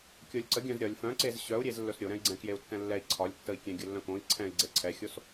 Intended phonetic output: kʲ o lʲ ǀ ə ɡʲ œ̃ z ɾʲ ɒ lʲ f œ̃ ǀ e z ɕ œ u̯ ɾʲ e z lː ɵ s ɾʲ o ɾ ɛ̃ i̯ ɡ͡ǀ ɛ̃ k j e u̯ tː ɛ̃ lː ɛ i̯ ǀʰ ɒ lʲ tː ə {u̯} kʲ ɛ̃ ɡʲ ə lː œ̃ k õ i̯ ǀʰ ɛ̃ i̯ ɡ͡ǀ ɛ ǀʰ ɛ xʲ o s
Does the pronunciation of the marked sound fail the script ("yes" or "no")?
yes